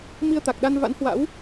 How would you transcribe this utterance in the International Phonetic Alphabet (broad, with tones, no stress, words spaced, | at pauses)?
mi˧ə̯t̪a˨˩k̚ɗa˧n va̰˧˥nhwa̰˧˥w